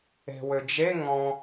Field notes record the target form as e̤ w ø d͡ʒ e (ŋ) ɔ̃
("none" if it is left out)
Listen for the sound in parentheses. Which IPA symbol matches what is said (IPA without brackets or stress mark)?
ŋ